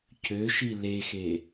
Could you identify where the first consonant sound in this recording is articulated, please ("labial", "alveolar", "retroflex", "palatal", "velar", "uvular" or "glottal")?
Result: palatal